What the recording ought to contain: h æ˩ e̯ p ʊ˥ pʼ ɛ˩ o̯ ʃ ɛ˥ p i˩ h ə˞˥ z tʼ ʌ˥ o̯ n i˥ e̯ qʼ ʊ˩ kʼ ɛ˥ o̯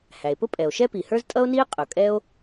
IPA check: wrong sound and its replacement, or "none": none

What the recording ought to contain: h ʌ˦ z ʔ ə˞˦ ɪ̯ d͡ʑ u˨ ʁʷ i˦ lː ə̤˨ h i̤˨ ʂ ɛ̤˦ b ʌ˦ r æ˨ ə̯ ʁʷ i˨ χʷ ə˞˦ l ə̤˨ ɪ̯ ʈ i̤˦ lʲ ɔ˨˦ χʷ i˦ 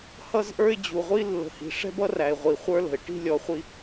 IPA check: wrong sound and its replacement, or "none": ə̯ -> ɪ̯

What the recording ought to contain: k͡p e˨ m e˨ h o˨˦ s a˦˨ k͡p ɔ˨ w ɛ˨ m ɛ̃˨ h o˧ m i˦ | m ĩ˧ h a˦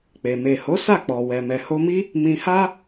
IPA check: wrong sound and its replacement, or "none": ɛ̃˨ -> ɛ˨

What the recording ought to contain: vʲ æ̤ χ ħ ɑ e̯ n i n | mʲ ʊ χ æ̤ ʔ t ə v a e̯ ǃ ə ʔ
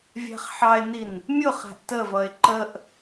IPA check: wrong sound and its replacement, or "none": a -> ʌ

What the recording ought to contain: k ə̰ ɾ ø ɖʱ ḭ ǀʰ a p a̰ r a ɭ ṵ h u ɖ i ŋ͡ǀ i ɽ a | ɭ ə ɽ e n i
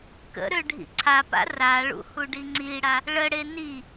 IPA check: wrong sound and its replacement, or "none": none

